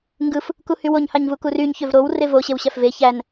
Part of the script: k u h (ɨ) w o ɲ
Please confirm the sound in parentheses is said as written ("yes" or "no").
no